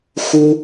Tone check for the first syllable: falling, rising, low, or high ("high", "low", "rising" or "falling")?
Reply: high